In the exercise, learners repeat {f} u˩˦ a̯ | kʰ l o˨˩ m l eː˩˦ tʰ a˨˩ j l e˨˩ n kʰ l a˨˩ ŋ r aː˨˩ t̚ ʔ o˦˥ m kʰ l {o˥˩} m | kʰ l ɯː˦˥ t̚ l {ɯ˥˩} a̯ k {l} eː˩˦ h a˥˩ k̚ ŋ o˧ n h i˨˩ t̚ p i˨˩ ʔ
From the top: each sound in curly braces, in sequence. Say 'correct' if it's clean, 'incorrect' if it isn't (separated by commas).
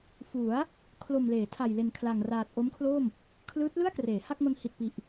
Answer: correct, correct, correct, incorrect